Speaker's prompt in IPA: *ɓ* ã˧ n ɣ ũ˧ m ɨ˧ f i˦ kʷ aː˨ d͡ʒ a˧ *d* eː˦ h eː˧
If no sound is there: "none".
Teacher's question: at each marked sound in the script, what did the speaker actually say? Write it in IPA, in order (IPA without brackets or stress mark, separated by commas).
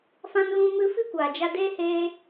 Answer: f, d